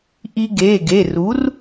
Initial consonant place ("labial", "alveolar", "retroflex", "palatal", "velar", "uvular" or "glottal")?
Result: glottal